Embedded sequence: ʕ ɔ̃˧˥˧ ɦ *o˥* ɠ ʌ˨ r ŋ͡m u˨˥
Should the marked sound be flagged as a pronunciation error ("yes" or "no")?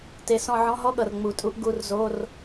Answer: yes